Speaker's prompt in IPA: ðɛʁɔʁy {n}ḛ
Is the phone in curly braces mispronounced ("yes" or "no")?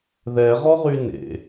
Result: no